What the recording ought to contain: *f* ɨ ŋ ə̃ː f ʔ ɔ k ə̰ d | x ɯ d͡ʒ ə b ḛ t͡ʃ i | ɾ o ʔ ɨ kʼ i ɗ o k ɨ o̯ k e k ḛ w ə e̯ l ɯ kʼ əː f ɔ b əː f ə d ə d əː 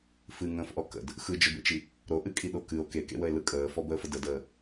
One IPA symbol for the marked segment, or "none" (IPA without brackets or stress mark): f